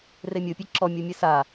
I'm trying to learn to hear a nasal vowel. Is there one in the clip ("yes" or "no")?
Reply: no